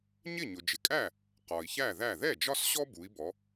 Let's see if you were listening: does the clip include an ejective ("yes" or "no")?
yes